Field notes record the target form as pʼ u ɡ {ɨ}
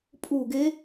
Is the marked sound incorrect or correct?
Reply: incorrect